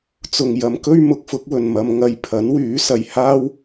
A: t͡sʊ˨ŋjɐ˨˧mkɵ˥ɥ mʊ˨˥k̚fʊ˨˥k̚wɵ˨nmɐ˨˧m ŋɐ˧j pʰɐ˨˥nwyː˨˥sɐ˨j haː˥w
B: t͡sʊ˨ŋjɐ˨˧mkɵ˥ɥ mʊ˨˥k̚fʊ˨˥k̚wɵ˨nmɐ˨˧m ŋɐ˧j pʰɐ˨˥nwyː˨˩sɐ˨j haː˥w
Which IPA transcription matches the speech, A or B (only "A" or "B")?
A